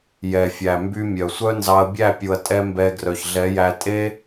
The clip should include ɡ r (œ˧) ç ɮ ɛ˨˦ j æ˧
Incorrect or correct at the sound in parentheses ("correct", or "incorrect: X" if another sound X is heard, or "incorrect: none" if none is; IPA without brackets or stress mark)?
incorrect: œ˨